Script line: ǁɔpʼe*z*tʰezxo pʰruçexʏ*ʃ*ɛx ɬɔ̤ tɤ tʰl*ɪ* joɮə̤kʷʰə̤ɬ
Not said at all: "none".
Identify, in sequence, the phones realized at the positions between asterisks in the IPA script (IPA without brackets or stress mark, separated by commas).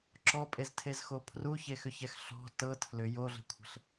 z, ç, ʏ